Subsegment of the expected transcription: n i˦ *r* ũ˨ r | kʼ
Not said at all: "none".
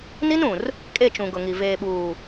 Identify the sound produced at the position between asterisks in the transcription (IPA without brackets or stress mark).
n